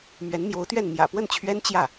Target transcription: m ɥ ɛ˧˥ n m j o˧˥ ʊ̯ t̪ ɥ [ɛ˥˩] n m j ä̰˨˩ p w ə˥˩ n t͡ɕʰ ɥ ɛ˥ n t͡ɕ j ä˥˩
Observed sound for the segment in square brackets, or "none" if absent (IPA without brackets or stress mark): ɛ˥˩